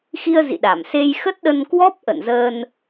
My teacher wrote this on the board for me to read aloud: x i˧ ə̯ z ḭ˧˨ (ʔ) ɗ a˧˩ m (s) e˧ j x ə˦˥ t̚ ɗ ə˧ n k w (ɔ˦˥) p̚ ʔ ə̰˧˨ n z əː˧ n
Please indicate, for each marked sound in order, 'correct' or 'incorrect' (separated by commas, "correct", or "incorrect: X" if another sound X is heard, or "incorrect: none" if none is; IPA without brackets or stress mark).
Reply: incorrect: none, correct, correct